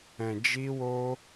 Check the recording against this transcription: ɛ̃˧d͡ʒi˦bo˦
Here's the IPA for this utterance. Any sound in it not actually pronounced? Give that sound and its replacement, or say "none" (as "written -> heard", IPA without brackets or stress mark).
b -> w